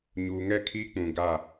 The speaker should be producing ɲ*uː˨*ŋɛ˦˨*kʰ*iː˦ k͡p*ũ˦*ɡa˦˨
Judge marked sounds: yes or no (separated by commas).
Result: yes, yes, no